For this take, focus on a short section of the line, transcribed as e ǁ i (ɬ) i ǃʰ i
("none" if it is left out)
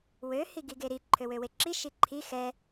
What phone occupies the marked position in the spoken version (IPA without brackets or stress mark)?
ʃ